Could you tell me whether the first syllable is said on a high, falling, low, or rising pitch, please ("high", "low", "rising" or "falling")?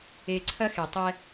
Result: high